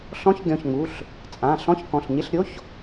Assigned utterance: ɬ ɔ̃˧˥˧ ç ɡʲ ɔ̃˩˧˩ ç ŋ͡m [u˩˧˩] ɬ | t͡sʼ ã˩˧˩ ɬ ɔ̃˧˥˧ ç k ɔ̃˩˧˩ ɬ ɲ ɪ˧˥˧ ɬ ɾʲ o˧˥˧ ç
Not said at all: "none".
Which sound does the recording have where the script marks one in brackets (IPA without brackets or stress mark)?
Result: u˩˧˩